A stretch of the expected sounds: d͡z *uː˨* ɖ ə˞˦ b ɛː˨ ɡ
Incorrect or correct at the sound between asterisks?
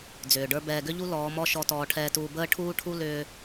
incorrect: ʏː˨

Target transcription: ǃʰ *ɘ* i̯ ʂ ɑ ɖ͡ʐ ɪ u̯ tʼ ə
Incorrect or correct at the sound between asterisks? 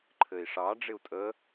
correct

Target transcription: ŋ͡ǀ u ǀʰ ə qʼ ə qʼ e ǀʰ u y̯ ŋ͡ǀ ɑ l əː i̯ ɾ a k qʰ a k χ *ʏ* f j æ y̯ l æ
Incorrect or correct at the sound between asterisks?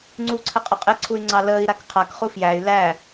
incorrect: u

